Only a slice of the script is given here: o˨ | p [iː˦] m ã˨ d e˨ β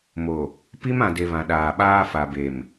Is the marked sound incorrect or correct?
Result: incorrect